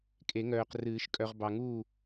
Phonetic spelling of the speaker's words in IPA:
kʼ e˨˩˦ ŋ œː˨ q r ɨː˨˩˦ ʃ kʼ œ˨ ʁ b ɑ˨ ŋ uː˥˨

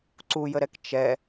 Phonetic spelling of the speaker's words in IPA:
ǀ u j ə ɾ ɛ k t͡ʃ ɛ

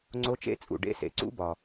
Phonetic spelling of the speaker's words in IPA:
ŋ͡ǀ o˦˥ t͡ʃ ḛ˦˥ t͡sʼ ṵ˨ ɖ ḛ˦˥ s ḛ˨ ǀ ṵ˦˥ b ɒ˨

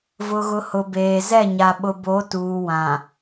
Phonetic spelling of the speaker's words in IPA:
v ʊ˨ ɣ ʊ˨ h ʊ˨ b eː˨ z ɛ˦˨ ɲ a˨ ɓ ʊ˨ b o˨˦ t uː˨ w ã˨

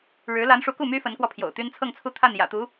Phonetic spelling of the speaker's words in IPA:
ɻ ɻ̩˧˥ l a˧˥ n ʂ u˧˥ k u˥˩ m y˥ f ə˧˥ n k w ɔ˧ pʰ j o̰˨˩ ʊ̯ t̪ y˥ n t͡sʰ ɤ˥˧ ŋ t͡sʰ u˥˧ t̪ʰ a˥˩ n j ä̰˨˩ t̪ u˧˥

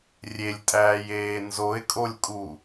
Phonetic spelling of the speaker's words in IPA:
rʲ e lʲ tʼ æː j eː n z o ɪ̯ kʼ o lʲ kʼ u

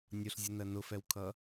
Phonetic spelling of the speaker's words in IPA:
nʲ ʊ ɬ zʲ ʊ n ɜ n ʊ f ɛ w kʰ ʌ

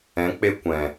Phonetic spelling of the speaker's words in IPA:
ɛ̃˨˦ k͡p e˧ kʷ ɛ̃˨

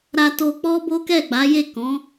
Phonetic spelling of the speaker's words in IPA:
ɾ a˧ t o˧ k͡p ɔ˦ b o˦ k ɛ˦˨ ɡ͡b a˨˦ j e˦˨ k ɔ̃˨˦

